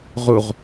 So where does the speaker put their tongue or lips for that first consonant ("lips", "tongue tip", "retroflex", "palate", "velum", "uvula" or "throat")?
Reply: uvula